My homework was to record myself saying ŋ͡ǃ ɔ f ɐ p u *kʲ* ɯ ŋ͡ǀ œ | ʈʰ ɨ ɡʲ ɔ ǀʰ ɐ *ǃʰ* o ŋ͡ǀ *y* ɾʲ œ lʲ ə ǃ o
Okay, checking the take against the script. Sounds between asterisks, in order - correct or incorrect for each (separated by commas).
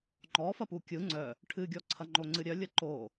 correct, incorrect, incorrect